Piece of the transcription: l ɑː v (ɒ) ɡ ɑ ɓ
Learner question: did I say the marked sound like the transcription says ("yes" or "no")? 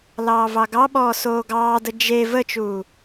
no